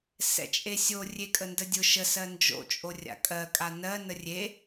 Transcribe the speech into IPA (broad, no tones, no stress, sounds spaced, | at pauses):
s ɛ̰ t͡ʃʼ e sʲ o rʲ e kʼ ə n d ə dʲ ʊ ʃ ə s ɜ n d͡ʒ o̰ t͡ʃʼ o rʲ a̰ kʼ ɜ kʼ a n ɜ n ə rʲ e